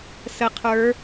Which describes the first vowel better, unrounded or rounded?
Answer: unrounded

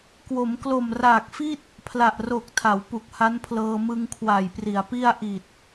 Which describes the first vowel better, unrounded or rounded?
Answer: rounded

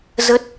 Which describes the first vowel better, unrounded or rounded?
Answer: unrounded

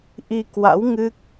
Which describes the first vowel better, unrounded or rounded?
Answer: unrounded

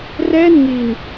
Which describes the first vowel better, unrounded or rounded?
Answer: unrounded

